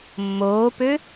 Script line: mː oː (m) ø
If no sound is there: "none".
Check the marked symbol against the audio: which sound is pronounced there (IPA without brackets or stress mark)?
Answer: p